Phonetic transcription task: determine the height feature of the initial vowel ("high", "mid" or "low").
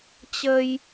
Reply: mid